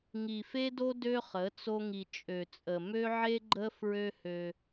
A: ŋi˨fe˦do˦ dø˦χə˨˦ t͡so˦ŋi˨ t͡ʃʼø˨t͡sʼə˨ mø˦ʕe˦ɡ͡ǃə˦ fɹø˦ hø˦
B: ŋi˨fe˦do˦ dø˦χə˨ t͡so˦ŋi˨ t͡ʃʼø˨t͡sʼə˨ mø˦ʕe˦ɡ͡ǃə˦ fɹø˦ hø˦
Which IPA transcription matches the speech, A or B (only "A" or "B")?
A